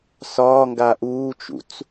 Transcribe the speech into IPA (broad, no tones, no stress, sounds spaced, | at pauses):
s ɒː ŋ ɡ a ʔ uː t͡ʃ ṵ t͡s